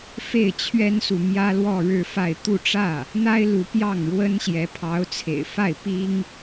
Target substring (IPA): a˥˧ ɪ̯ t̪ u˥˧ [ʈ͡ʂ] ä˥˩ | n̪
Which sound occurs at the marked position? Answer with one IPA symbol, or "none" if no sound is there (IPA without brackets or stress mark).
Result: ʈ͡ʂ